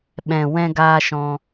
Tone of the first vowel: low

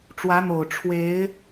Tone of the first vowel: rising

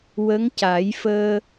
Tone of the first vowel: rising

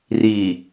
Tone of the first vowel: low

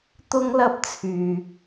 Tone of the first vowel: high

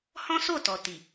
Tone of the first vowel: high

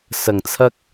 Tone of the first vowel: low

